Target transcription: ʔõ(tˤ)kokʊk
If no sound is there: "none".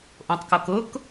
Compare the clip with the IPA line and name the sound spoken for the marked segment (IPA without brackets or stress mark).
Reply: tˤ